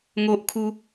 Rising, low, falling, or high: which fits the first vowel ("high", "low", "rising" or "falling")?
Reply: high